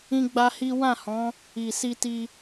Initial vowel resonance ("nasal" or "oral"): nasal